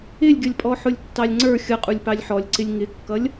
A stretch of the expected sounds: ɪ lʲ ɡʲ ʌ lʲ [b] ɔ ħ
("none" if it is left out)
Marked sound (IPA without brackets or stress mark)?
pʼ